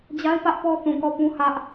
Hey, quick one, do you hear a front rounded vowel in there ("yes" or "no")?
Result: no